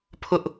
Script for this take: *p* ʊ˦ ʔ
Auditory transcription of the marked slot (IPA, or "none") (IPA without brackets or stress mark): pʰ